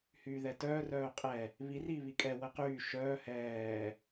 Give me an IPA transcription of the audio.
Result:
hyːðɛtœːr œːqʼɛ | βir iːβikʼɛ wəqyː ʃœː hɛː

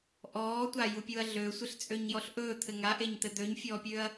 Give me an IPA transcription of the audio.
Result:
ʔɔːtʷajupʲuɐ̯ ɮøsʷɘɬt͡sʼøɲjɔɬ ʔɵːt̪ʰɘ ŋaʔeɲt̪ɘ d̪øɲfʲɔːpʲøːɐ̯

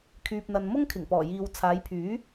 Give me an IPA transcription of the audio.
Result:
kʰyː˨p̚n̪ɐ˨nmʊ˥ŋ kʰɪ˨˩ŋpɔː˨˩jiː˨w t͡sʰaː˨˧jpʰyː˨˥

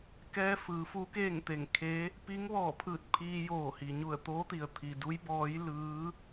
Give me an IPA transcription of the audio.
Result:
kɛː˧ fɯː˩˧fu˧˥keː˥˨ŋt̪e˧˩ŋ kʰe˧˥ | piː˧˥ŋʋɔː˧˩pʰɯː˧˩t̚ pʰiː˧joː˧˩hi˩ ɲu˧˩ə̯t̪oː˧˥t̪i˩ə̯ t̪ʰi˩du˧˥jbɔː˧˥j lɯː˧˥

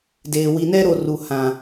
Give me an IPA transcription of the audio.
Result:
deː˨ wi˨nɛ˦ɾo˨ ru˨hã˨

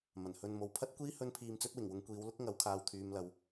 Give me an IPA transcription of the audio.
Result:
mɐ˨˩nhɵ˧n mo˨wpʰɐ˥t̚kʷiː˥ hɵ˥npʰiː˧mt͡sɵ˥t̚ wɪ˨˩ŋwʊ˨˧ŋ kʷiː˨˧w lʊ˥k̚ŋɐ˨˥wkʰaː˨w t̪ʰyː˨m lɐ˨w

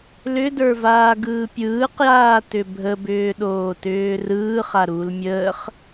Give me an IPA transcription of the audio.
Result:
lʏdə˞vaːɡɯː pʲɯːqjaːtʏ bʱəbʏːɗoːtʏː rɯːχaɾuːl mʲəːχ

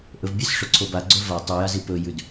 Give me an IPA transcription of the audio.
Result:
ʔɵvbʲɨsʂɵǀʰo baɡ͡ǀɵ va tˤʉjazi pɵjʉd

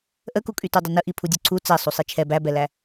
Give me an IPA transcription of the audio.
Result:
ʔəkukʼy tudˤənəʔi pʰudʲuǀʰu t͡sɛ sˤusˤit͡ʃʰɛ bæbɛlæ

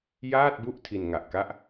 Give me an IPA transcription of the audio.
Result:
jaː˥˩t̚bu˥˩ʔ tʰi˧nŋa˨˩ʔka˥˩ʔ

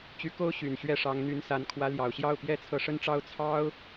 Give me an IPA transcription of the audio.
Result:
t͡ɕy˧˥ko˥ʊ̯ ɕy˨˩nɕɥɛ˥˩ʂɑ˧˥ŋ n̪y˧˥nsa˧˥nkʰwä˧˥ ljɑ˨˩ʊ̯ɕjɑ˥˩ʊ̯ pjɛ˥t͡sʰɤ˧˥ʂə˥nʈ͡ʂɑ˥ʊ̯ t͡sʰɑ˥ʊ̯

